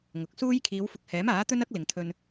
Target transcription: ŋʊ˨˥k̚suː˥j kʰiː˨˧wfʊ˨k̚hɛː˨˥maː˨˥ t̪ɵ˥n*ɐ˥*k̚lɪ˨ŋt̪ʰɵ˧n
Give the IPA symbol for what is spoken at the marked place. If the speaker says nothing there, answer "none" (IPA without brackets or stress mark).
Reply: ɐ˥